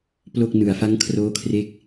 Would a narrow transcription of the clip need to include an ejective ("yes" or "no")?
no